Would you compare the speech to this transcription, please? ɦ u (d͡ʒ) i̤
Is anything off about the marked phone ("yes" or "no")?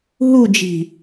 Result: no